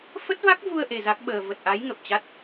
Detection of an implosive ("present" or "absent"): present